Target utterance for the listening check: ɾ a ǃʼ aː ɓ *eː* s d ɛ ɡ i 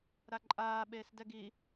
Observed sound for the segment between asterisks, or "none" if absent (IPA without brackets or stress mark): eː